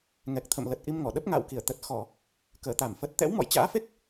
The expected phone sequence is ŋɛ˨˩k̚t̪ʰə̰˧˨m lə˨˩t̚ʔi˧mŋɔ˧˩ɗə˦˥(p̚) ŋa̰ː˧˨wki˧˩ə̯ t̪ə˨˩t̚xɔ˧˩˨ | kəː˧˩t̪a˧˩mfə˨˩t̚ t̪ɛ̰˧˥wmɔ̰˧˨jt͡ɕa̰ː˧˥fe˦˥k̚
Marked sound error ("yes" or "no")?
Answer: no